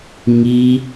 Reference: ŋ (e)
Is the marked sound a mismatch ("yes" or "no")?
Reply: yes